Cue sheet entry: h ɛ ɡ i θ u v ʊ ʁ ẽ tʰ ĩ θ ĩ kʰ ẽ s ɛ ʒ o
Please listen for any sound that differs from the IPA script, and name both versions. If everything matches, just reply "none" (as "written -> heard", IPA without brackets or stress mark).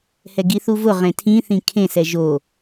none